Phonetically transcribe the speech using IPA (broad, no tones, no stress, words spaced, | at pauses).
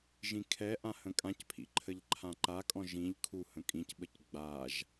ʒĩkʰɛʔã hə̃kʼãcpʰḭ ǃʰəʎǃʰãǃakʼɔ̃ ʒĩʎ kʰu hə̃kʼĩcɓəc ɡ͡baʒ